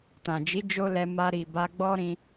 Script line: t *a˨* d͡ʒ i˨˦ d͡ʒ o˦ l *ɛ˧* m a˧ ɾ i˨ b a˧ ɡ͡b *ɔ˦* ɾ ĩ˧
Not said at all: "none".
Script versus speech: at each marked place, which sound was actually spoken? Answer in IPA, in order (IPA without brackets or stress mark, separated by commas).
ã˨, ɛ˧, ɔ˦